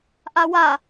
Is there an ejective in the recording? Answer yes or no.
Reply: no